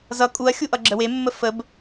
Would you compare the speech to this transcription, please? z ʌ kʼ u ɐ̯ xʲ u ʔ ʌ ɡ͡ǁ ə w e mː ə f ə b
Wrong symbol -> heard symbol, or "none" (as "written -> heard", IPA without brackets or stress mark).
none